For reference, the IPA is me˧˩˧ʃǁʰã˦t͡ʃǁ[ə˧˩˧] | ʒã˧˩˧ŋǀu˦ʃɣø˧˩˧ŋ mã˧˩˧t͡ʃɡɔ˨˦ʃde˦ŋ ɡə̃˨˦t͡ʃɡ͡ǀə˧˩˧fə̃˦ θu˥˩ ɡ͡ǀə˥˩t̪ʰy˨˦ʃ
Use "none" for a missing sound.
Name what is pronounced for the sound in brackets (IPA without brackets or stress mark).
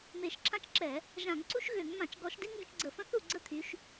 ɛ˧˩˧